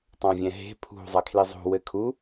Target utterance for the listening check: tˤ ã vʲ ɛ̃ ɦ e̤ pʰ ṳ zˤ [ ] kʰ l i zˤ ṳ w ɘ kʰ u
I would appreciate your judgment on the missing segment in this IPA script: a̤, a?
a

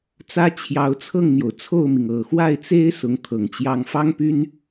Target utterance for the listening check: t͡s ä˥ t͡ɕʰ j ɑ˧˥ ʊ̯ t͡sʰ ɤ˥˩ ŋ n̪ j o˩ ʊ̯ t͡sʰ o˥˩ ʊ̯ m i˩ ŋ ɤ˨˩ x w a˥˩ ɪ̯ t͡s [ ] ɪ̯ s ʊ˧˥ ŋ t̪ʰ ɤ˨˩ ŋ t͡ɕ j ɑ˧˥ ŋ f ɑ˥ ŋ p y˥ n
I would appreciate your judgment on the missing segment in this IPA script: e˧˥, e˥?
e˥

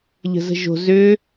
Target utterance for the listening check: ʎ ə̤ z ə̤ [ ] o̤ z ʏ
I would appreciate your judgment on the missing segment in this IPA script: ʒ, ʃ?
ʒ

